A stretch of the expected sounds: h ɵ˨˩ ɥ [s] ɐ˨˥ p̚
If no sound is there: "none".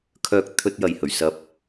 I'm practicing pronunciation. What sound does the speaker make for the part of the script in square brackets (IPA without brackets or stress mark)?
s